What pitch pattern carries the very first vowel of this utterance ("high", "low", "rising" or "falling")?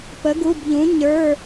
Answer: rising